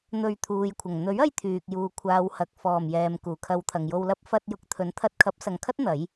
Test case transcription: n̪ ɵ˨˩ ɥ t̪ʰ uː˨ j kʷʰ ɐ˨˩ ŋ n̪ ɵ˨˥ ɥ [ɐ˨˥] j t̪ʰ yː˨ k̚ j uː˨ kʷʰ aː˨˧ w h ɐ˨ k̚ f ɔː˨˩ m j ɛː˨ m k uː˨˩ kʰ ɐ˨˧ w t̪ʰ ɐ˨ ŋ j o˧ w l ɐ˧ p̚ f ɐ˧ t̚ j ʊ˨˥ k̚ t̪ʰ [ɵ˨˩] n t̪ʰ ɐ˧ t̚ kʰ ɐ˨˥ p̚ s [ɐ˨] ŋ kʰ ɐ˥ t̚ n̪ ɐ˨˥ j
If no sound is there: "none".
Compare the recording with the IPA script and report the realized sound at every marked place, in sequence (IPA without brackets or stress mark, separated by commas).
ɐ˧, ɵ˨˥, ɐ˨